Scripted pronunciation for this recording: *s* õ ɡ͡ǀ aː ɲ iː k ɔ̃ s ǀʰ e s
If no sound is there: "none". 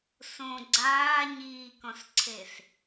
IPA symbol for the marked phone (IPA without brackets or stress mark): s